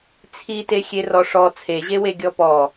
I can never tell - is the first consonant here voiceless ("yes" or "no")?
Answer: yes